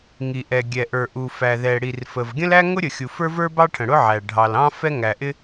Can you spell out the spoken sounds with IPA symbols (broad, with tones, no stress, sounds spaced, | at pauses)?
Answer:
ŋ i˩ ʔ ɛ˩ ɡʲ ɛ˩ ʔ ə˞˩ ʔ u˩ f æ˩ ð ɛ˩ ɽ i˩ r f ə˩ v ɡʲ ə̃˥ l æ˥ ŋ ʊ˥ ɾʲ ə˩ xʲ u˩ f ə˞˥ v ə˞˥ b ɑ˥ ʈʰ ə̃˩ ɽ ʊ˥ ʕ æ˩ ɖʱ ɑ˩ l ɑ̃˥ f ɛ˥ ŋ æ˩ ʔ ɪ˥